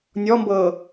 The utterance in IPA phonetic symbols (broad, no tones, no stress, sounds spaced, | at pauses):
nʲ ɔ m b ɤː